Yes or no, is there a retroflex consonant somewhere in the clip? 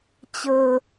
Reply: no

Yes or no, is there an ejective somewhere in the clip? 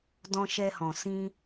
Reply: no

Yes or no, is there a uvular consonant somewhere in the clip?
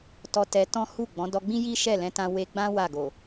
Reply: no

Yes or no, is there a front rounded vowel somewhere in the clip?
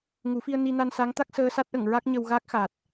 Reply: no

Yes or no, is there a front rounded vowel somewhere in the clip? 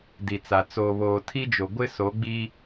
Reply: no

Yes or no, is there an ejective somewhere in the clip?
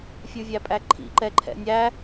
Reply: yes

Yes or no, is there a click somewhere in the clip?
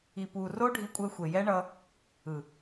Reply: no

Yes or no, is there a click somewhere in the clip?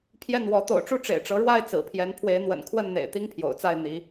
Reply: no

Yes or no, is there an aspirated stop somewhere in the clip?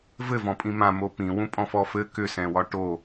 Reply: no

